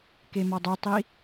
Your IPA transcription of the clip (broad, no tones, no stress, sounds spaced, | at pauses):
k e m ɒ dˤ o tˤ i